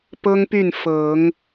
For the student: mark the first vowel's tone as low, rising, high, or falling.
high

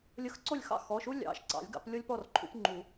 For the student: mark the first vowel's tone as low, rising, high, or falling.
rising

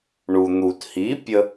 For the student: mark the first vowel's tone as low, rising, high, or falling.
low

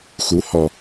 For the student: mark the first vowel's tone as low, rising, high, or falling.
rising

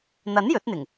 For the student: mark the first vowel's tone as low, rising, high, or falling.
rising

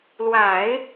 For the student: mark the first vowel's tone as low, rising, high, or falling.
low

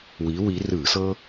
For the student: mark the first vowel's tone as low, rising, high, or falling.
rising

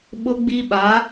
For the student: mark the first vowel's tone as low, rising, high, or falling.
high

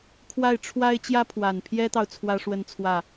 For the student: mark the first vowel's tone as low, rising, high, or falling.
falling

